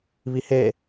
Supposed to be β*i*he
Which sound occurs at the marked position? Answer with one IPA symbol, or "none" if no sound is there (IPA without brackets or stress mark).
i